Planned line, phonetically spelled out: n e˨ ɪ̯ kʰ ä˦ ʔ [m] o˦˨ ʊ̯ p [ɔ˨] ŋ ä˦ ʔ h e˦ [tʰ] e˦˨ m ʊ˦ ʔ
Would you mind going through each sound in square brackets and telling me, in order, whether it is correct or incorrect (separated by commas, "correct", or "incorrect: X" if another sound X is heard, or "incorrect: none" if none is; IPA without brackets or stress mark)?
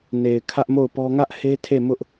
correct, incorrect: ɔ˦, correct